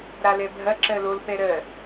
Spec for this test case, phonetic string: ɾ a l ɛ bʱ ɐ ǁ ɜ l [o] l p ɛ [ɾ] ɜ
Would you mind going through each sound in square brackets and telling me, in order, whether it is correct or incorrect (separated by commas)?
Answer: correct, correct